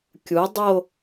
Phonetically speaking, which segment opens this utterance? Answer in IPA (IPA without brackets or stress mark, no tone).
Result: kʲ